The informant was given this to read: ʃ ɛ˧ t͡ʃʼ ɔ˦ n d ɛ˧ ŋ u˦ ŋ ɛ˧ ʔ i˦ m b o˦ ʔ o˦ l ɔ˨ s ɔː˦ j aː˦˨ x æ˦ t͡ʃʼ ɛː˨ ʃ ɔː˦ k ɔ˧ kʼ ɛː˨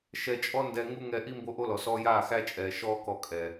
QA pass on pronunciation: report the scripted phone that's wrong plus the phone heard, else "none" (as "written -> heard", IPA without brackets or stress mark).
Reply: none